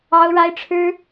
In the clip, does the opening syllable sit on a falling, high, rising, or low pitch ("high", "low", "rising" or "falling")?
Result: high